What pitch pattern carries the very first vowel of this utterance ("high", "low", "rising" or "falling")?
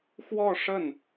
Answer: falling